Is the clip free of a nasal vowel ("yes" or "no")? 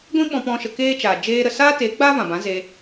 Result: no